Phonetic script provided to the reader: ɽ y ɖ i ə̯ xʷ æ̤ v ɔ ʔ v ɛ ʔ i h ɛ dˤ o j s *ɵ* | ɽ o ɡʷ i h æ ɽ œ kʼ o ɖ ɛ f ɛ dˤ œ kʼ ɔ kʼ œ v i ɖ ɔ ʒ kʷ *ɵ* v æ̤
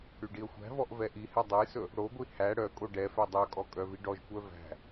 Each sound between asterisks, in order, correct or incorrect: correct, incorrect: œ

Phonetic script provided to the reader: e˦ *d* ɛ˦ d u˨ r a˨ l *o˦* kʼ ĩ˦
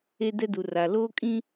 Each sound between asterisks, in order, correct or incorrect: correct, incorrect: oː˦

